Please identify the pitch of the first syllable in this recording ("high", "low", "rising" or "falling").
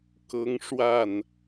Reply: high